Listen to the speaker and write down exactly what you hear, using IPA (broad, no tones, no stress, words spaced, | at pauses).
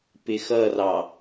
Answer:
pɪxʌrɑ